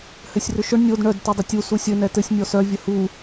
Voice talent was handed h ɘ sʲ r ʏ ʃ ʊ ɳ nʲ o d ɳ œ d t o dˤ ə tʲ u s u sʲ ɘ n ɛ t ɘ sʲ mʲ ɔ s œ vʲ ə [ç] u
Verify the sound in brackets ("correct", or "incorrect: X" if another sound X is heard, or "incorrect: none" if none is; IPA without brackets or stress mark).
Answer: incorrect: h